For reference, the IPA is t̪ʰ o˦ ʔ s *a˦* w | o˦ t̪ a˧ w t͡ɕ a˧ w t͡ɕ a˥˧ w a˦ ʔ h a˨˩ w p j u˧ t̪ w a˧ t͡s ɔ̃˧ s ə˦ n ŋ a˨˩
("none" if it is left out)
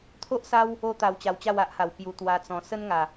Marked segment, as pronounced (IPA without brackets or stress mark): a˦